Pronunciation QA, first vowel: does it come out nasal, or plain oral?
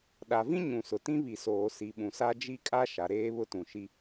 oral